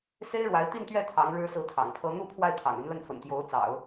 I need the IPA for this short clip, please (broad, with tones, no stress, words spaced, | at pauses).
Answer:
se˥ɪ̯ɻwa˧˥ɪ̯t̪i˥˧nt̪ɥɛ˥˩ t̪ʰɑ˧˥ŋ ɻɻ̩˥sɹ̩˥˩t̪ʰɑ̰˨˩ŋpʰɤ˥ n̪u˥˧ pʰwa˥˩ɪ̯ t̪ʰɑ̰˨˩ŋy˧˥nlə˥˩n fə̰˨˩nt̪jo˧˥ʊ̯t͡sɑ̰˨˩˦ʊ̯